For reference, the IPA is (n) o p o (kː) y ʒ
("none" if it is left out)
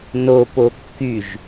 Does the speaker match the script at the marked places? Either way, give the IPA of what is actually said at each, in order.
n, kː

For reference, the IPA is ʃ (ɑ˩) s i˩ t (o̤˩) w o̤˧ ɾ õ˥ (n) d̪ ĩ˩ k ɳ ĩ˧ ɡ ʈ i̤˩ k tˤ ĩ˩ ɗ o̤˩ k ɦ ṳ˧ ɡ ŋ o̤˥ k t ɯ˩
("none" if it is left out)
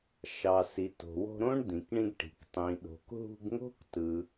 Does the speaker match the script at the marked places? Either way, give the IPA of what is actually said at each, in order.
ɑ˩, o̤˩, ɳ

